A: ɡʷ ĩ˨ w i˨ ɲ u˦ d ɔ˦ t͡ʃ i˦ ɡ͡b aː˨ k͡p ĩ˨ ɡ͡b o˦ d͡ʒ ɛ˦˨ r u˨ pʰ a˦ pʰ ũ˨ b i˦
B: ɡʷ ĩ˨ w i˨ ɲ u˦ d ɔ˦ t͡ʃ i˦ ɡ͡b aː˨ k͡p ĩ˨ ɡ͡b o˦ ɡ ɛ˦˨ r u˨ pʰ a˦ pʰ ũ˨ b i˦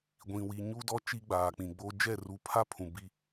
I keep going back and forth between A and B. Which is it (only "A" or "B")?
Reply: A